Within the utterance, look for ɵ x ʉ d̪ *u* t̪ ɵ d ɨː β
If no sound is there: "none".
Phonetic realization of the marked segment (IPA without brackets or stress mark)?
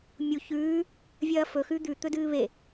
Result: ʉ